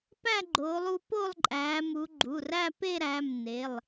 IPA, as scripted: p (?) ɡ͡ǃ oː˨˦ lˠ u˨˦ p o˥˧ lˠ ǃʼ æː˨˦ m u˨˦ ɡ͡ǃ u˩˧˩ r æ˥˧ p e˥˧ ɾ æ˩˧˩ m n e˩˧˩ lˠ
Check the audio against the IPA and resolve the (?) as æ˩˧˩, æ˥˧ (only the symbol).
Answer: æ˥˧